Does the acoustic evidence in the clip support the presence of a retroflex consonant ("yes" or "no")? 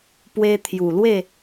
no